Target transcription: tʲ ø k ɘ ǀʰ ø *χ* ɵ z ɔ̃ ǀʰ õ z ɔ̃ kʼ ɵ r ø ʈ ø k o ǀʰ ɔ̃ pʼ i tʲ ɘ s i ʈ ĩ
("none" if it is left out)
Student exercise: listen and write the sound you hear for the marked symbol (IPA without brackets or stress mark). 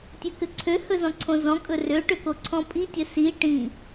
h